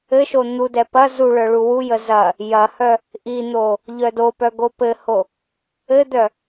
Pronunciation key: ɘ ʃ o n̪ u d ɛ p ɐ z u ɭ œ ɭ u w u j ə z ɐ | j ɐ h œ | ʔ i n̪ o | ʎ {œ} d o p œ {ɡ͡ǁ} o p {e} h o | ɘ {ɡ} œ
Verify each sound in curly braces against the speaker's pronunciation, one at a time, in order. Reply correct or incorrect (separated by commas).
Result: correct, incorrect, incorrect, incorrect